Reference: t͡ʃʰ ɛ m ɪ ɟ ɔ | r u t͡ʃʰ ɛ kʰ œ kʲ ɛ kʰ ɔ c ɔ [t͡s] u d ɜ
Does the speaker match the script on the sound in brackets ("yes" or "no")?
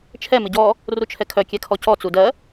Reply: yes